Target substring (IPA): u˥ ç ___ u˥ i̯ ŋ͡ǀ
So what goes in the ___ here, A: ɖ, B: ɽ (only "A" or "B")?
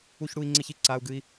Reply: B